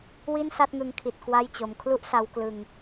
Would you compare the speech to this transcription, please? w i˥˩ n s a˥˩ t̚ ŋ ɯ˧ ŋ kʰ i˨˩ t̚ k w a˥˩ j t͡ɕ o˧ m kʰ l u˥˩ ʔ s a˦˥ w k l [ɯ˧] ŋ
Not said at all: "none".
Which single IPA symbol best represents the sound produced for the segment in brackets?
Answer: ɯ˧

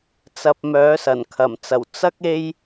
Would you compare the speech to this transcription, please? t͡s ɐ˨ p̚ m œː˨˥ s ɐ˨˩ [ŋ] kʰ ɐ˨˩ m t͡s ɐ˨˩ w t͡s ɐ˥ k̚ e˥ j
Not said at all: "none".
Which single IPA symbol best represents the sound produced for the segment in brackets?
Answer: n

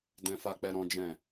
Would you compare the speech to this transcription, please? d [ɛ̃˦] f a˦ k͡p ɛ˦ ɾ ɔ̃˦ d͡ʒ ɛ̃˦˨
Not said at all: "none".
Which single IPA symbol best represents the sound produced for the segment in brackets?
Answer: ɛ̃˦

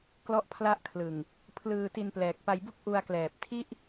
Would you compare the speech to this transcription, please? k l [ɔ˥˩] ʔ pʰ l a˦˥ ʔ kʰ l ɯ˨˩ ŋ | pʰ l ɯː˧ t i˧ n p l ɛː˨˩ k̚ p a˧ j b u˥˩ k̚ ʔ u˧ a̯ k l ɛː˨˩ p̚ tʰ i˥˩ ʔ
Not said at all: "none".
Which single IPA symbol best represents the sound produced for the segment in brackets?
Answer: ɔ˦˥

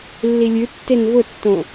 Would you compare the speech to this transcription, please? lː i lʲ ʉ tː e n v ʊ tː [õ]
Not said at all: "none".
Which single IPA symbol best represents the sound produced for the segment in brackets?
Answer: õ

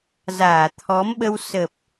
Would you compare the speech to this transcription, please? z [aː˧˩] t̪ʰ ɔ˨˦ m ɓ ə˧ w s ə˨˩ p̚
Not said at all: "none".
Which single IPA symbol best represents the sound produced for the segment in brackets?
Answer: aː˧˩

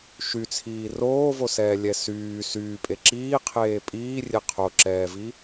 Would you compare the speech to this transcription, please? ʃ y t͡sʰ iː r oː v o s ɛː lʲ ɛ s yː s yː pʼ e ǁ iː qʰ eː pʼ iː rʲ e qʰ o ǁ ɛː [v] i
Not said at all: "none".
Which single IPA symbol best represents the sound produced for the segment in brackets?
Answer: v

